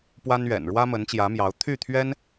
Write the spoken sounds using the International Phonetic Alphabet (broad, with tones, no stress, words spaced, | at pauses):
pwa˥nɥɛ̰˨˩n ɻwä˥mə˧˥nt͡ɕjä˧˥mjɑ˧˥ʊ̯ t̪ʰy˥˩t̪ʰɥɛ˥n